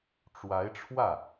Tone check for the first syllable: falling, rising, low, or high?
rising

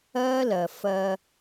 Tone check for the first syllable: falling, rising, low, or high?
high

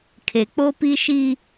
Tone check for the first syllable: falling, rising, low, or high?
low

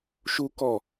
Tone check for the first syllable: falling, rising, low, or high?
high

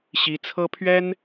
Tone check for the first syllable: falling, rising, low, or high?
high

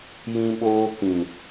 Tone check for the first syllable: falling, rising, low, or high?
high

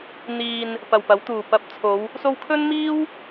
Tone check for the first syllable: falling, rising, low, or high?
low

